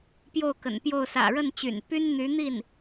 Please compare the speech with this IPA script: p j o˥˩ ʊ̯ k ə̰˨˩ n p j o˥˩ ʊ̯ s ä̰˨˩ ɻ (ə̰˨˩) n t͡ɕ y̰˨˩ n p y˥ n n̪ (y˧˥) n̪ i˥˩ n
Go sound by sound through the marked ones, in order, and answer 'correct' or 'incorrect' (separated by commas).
incorrect, correct